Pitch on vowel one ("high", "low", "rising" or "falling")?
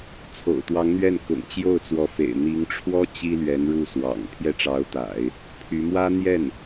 low